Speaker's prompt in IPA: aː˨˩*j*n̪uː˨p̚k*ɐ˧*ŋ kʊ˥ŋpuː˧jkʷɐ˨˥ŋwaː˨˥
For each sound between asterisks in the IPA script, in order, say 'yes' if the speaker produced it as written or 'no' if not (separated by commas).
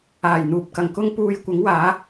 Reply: yes, no